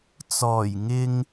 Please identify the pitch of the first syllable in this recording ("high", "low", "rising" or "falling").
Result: low